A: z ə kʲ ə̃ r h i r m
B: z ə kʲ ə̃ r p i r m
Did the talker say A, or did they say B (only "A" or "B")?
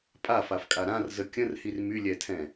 A